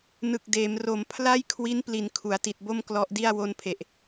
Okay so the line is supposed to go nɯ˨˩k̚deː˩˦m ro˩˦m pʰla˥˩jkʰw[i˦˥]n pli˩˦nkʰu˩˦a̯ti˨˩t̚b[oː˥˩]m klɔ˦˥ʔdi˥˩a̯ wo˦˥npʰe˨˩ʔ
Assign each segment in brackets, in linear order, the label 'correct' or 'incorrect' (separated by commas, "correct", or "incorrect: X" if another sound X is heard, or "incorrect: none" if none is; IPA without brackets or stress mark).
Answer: correct, incorrect: o˥˩